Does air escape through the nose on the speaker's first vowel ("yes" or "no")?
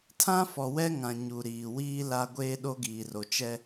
yes